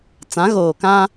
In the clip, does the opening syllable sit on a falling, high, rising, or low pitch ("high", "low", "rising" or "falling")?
rising